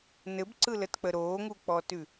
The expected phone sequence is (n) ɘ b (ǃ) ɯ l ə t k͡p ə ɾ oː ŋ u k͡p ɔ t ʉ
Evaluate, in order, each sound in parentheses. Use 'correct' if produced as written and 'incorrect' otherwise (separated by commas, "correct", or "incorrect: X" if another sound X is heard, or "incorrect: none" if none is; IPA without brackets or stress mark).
correct, incorrect: ǀ